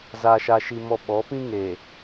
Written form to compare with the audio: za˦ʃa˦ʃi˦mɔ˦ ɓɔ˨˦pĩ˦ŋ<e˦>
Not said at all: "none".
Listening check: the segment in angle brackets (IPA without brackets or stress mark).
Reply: e˨